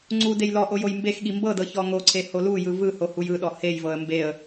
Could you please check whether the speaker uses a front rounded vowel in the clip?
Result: no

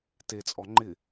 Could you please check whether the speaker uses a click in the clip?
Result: yes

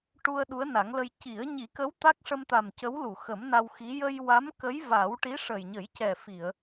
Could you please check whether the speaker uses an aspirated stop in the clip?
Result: no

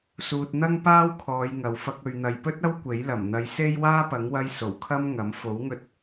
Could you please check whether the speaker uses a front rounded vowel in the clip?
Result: no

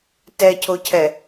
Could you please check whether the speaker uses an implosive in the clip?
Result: no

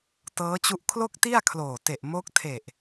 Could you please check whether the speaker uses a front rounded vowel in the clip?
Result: no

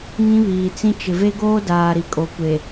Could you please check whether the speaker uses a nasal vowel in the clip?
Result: yes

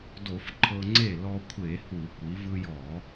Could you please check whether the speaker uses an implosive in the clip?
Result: no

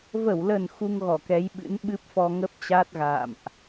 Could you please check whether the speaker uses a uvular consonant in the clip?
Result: no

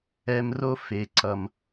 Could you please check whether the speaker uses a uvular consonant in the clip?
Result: no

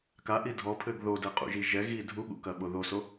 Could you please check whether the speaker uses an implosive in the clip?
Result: yes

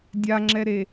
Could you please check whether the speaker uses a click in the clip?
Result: yes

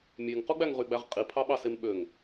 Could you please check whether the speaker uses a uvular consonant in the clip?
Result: yes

